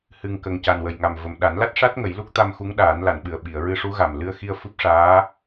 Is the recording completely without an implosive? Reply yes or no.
no